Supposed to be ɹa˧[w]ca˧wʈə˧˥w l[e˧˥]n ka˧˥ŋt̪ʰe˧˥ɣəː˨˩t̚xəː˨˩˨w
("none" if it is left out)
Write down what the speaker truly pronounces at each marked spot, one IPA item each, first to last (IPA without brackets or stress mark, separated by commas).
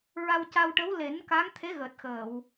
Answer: w, e˨˩˦